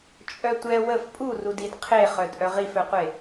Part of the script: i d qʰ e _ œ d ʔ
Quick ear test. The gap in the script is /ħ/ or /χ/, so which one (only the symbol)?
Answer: χ